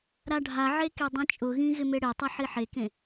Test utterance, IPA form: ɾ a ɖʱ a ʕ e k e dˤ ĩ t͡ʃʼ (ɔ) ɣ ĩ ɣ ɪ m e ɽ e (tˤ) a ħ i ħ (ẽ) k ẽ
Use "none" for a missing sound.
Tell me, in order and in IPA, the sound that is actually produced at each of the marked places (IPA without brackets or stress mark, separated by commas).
ʊ, tˤ, e